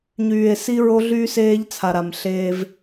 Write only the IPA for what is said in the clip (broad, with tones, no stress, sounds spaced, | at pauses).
ɲ yː˨ e̯ s i˦ ɹ o˦ ɮ yː˦ s eː˦ ʎ t͡sʰ a˨ ɾ a˨ m ɬ eː˦ v